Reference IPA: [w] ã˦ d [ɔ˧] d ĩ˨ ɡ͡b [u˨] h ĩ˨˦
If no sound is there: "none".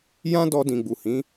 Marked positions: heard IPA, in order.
j, ɔ˧, u˨

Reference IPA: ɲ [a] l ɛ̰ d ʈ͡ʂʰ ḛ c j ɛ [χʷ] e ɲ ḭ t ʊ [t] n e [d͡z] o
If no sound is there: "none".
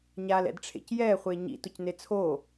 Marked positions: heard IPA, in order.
a, χʷ, c, t͡sʰ

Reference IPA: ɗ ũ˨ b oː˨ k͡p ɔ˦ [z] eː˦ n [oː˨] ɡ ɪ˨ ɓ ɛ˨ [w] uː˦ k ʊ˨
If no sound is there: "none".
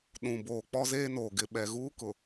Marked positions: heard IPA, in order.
z, oː˨, ɣ

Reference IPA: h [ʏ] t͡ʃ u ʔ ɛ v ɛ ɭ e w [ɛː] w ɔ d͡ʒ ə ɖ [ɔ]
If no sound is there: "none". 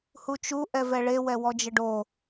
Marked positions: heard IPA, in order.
u, ɛ, o

